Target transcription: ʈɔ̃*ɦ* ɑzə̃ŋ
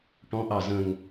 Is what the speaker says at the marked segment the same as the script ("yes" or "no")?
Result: no